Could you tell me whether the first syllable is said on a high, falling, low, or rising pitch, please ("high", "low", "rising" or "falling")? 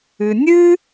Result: low